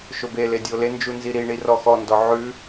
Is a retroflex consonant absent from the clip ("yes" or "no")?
no